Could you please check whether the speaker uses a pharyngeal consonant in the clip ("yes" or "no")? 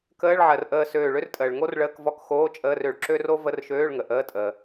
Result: yes